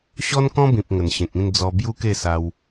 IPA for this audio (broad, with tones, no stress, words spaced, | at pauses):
ɕɔ˦nkɔ̃˦bĩ˨p̚ ŋə˨˩nɕẽ˨k̚ĩ˥˧n d͡zɔ˧bju˦ke˥˧sa˧w